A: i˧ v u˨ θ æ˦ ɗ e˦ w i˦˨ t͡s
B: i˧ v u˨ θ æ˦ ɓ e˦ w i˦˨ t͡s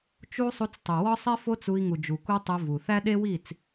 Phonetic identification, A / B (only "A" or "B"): A